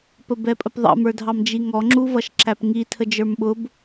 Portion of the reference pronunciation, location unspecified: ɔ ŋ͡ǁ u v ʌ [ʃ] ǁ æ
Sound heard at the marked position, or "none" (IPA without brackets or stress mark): ʃ